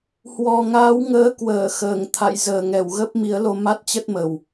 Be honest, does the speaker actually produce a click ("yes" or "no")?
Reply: no